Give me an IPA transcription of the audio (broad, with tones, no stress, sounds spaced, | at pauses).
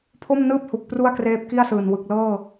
pʰ o˥˩ m n ɯː˥˩ p̚ h u˨˩ k̚ p r u˥˩ a̯ k r eː˦˥ p̚ k i˥˩ a̯ s ɯː˨˩ n w ɯ˨˩ k̚ l ɤː˥˩